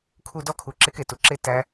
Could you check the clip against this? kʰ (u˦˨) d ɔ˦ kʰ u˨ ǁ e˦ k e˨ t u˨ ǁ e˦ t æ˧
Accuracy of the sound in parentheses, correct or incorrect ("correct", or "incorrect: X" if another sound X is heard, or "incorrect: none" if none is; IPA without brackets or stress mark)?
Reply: correct